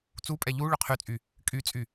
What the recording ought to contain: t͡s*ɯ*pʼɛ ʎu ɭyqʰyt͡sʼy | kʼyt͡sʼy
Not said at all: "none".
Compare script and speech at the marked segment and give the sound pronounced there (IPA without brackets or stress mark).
u